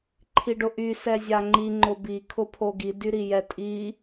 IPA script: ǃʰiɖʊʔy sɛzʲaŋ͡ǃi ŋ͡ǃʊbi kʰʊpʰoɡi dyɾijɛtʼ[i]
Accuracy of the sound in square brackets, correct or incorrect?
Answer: correct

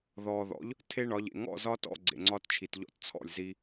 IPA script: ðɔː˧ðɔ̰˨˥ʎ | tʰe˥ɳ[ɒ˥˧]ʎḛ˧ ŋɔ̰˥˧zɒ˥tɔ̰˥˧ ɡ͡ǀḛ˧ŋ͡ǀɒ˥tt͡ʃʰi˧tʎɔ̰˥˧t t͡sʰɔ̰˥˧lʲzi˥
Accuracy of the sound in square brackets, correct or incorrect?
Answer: incorrect: ɒ˨˥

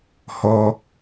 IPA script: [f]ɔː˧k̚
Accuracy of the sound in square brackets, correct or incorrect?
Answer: incorrect: h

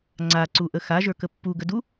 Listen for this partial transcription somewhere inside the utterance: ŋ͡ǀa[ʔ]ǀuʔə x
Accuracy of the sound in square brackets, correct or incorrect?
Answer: incorrect: none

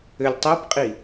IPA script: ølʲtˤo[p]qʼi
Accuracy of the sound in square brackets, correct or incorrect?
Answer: correct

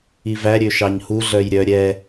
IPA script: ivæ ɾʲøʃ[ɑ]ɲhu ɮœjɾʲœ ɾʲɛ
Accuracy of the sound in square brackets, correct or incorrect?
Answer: correct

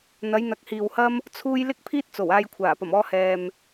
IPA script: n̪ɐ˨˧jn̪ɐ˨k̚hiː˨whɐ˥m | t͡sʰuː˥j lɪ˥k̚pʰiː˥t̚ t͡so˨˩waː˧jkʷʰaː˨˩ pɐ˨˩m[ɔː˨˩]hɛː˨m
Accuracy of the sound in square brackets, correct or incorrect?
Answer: incorrect: ɔː˧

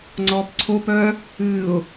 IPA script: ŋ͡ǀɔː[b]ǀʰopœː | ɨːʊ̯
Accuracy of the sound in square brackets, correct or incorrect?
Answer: incorrect: p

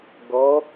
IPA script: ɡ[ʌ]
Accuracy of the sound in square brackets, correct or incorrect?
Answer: correct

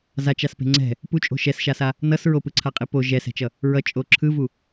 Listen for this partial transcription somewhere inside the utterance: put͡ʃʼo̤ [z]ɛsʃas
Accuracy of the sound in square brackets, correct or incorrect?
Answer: incorrect: ʃ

